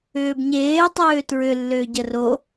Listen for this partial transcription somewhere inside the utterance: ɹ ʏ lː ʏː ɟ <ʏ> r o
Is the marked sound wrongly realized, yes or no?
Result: yes